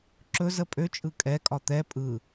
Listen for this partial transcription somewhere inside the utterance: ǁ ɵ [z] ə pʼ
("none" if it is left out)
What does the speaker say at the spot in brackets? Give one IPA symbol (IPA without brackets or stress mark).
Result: z